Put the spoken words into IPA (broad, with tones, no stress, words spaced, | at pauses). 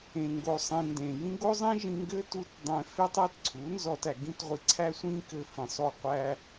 ẽ˧ŋɡo˧sˤĩ˧ ndẽ˨jĩ˦ ɡo˦zˤĩ˦ʒĩ˧ ŋɡɘ˦tu˧t dˤẽ˧ fɪ˦tˤæ˦t ǀʰu˨˦nzɔ˧tæ˨ ɡĩ˦tʁʷi˧ǀʰæ˦ sʷĩ˦ kɘ˧fĩ˨sˤo˦˨ qʷæ˧